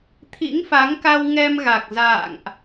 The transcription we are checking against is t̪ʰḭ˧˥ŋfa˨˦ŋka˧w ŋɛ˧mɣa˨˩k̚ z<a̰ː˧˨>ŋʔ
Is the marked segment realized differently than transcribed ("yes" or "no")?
no